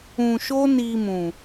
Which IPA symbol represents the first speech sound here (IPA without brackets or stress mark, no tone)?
ũ